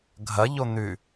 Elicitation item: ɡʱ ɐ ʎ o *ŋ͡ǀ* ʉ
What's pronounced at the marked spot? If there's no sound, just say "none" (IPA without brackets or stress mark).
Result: n̪